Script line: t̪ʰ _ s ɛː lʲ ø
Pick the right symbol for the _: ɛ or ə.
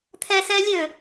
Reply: ɛ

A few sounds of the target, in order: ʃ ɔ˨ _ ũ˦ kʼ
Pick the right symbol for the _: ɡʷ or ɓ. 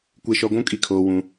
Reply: ɡʷ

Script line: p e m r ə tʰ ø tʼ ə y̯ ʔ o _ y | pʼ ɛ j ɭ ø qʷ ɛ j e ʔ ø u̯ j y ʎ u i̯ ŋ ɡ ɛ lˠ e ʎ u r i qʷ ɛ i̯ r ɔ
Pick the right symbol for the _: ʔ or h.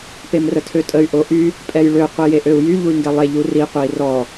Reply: ʔ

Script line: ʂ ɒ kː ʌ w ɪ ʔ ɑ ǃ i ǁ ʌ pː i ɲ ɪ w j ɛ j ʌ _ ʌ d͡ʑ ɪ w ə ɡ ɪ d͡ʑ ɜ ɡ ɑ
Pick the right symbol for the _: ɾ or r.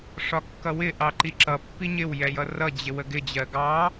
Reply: r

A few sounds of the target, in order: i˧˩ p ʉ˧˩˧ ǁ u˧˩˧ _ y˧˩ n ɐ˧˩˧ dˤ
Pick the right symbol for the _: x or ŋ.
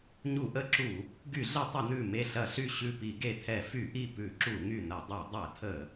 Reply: ŋ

